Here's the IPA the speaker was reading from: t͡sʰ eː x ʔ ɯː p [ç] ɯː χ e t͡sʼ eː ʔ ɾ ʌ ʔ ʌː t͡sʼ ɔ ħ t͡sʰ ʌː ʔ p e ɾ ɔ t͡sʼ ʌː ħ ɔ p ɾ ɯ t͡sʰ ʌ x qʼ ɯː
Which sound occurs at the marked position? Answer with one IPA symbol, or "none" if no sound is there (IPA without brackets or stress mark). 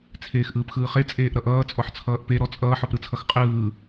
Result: x